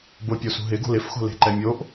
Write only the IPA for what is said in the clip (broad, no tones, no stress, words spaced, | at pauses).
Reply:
bʊpʲosṳ ɦɪɡo̤l ɪfxo̤le̤ǃɛ mʲoʔ